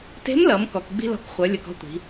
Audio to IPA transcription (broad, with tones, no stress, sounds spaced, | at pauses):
t e̤˧˥ m l ʌ˩˧ m k ɔ˩˧ k ɡ͡b i̤˥ l ɔ̤˧˥ k χʷ ʌ˩˧ lʲ ʌ˩ k ɔ̤˧ tʷ i̤˩˧